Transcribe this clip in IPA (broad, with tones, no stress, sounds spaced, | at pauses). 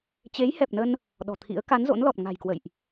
t͡ɕ e˨˦ j h ɛ˨˩ p̚ n ə˧ n | ɗ ɔ̤˨˩ t̪ʰ ḭ˧˥ ə̯ k a˨˦ n z o̰˧˥ n l ɔ˨˩ t̚ ŋ a̤˨˩ j k w ə̰˧˨ j ʔ